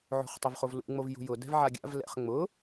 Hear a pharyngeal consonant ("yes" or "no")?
yes